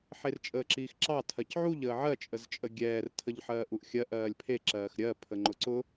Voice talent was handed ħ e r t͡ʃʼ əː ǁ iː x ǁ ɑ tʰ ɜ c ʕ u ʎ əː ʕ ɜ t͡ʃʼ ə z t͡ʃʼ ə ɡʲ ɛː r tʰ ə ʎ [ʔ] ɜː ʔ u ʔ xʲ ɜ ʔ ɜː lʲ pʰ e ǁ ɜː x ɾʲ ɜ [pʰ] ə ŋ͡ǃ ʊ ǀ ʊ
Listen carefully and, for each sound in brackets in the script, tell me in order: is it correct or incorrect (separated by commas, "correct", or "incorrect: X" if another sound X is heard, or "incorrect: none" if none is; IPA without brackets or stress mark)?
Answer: incorrect: ħ, correct